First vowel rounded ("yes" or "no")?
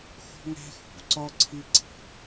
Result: yes